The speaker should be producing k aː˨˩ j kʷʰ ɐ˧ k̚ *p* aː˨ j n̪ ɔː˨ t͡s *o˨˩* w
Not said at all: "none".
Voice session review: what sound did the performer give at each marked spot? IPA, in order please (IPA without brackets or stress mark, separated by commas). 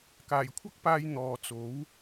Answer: p, o˨˥